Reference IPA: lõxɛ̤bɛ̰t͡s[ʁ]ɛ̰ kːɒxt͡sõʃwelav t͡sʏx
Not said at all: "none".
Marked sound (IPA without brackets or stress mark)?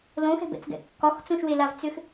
ɡ